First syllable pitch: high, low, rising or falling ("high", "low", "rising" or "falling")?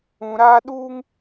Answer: low